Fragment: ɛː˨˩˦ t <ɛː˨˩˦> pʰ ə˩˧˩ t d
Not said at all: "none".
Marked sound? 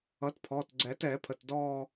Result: ɛː˨˩˦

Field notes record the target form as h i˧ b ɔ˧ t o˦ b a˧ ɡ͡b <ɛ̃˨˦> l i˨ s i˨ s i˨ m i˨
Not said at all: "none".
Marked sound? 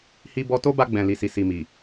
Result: ɛ̃˨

